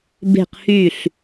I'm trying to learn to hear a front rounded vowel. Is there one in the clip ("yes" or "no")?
yes